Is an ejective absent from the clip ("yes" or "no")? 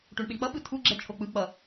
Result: yes